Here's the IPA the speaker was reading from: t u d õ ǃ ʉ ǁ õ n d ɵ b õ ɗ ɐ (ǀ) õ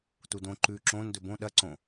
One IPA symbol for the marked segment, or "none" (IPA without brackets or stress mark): ǀ